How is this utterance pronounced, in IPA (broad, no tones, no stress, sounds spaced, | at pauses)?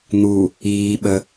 n̪ u | iː ɓ ə